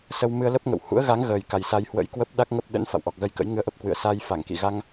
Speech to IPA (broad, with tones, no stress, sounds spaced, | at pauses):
s ə˧ w m ɨ˧ ə̯ l ə˦˥ p̚ ŋ ə̰˧˨ w h ṵ˧˥ ə̯ ɣ a˨˦ ŋ ɣ əː˨˩ j k a˨˩ j s a˧ j h w ə̰˧˥ j k w ə˦˥ p̚ ɗ a˦˥ k̚ ŋ ə˦˥ p̚ ɗ ə̰˧˥ n f a̰˧˨ w ʔ ɔ˨˩ k̚ ɣ ə˧ j k ə̰˧˥ j ŋ ɨ˧ ə̯ ʔ ə˦˥ p̚ k w ɨ̰˧˨ ə̯ s a˧ j f a˧˩ ŋ k ḭ˧˨ ɣ a˧ ŋ